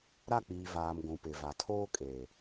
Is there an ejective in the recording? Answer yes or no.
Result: yes